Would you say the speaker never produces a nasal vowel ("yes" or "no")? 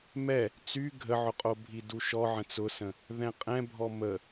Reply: no